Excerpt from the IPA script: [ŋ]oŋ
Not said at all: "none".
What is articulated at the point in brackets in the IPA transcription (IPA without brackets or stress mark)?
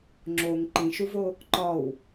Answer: ŋ͡ǁ